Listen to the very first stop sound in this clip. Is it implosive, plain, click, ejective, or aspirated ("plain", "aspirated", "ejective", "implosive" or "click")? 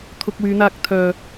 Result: aspirated